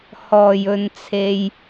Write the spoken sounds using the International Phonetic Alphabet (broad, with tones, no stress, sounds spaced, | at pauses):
h ɔː˨˩ j ɵ˨ n t͡sʰ e˧ j